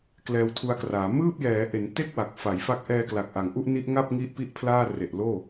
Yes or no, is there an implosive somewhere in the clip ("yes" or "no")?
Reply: no